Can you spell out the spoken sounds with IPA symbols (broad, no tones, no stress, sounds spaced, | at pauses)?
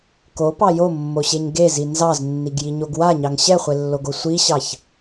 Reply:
k o p ɑ j o mː o ɕ e ɲ ɡ e z i n z ɑ z nː i ɡ j i ɲ o ɡ w a ɲ ɑ ŋ ɕ ɛ χʷ e lː o ɡ o sʷ i ɕ ɑ ç